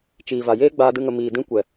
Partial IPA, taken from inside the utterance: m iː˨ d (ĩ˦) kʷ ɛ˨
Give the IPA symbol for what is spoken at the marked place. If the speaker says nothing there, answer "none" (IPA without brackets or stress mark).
ĩ˦